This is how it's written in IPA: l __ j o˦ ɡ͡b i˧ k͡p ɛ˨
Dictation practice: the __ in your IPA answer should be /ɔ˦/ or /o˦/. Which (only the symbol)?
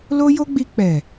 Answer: o˦